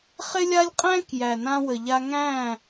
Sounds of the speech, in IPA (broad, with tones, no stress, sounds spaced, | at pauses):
χ ɪ˦ lʲ a˦ lʲ qʼ æ̃˦ k j æ˨ n ã˧ w ə˨ ʎ a˧ ŋ æ̃˦˨